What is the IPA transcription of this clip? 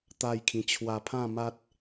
t̪ a˥˧ j kʰ ĩ˧ t͡ɕʰ w a˧ pʰ ã˥˧ m a˦ t̚

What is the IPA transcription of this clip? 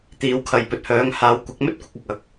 t̪ iː˨˧ w kʰ ɐ˨ j p ɵ˨ t̚ h œː˨˧ ŋ h aː˨˧ w kʷ ɐ˨˥ k̚ m ɵ˥ t̚ kʷ ɪ˧ k̚ ɐ˨ k̚ ɐ˨ k̚

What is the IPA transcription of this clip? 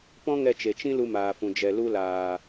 p ɔ̃˦ ŋ ɛ˧ t͡ʃ e˨ t͡ʃ ĩ˦ l u˧ m aː˨ f ũ˨ d͡ʒ ɛ˨ l u˧ l aː˨

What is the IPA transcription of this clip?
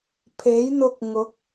pʰ e˨˥ j n̪ ʊ˧ k̚ ŋ ʊ˨˥ k̚

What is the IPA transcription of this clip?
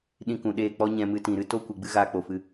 ɗ ĩ˧ k ũ˨ ɗ eː˦˨ k͡p ɔ˦ ɲ ɛ̃˧ m ɨ˧ t ĩ˨ ɾ ɨ˦ t o˦ kʷ ɨ˨ ɡ͡b ɨ˦ ɣ aː˧ k͡p o˨ f ɨ˧

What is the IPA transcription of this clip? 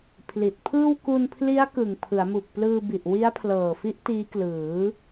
pʰ l i˨˩ t̚ pʰ ɯː˥˩ w k u˧ n pʰ l i˦˥ a̯ k ɯ˨˩ ŋ pʰ ɯ˩˦ a̯ m u˨˩ k̚ p l ɯː˧ b i˨˩ ʔ w i˦˥ a̯ pʰ l ɤː˨˩ f i˦˥ ʔ t iː˦˥ k l ɯː˩˦

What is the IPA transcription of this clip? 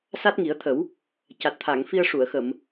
s a˦˥ t̚ ŋ i˨˩˦ ə̯ t̪ʰ ə˨˩˦ w | c a˨˩ t̚ t̪ʰ a˨˩˨ ŋ f i˧ ə̯ ʂ u˨˩˨ ə̯ x ə˨˩˨ m

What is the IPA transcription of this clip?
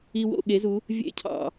i˧ w o̰˦˨ ɠ e˨˦ z u˨˦ | vʲ ḛ˧ cʰ ɑ̰˨

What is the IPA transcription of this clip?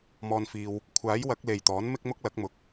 m ɔː˨ n f iː˨ w | kʷʰ aː˨˥ j w ɐ˨˥ k̚ l e˨ j t̪ ɔː˨˥ n m ɪ˥ k̚ m ʊ˥ k̚ l ɐ˨˥ k̚ m ʊ˨ k̚

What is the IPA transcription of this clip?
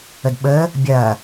ə d ɓ əː | bʲ ɐː

